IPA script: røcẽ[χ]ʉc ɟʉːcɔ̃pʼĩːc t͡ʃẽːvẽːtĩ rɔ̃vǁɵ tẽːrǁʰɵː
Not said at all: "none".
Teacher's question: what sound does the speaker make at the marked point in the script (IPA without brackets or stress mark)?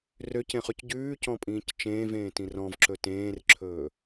χ